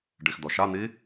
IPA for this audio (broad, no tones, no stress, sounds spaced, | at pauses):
ɖ i x d̪ ɔ ʃ a n̪ i